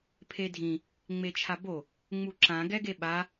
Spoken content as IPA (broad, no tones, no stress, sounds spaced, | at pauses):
pʰ e dʱ ĩ | ŋ͡m e t͡ʃʰ a b o | ŋ͡m u ǁ ã ɡ ɛ ɡ e ɓ a